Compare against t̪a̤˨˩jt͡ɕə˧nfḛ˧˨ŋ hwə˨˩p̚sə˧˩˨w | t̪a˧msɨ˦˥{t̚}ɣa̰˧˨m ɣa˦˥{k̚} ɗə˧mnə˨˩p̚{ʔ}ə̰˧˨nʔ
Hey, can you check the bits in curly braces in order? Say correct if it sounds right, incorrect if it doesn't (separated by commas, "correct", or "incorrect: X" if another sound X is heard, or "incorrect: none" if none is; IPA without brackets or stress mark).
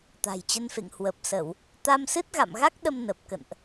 correct, correct, incorrect: k